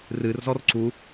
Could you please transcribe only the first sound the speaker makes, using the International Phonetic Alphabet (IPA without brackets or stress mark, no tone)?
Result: r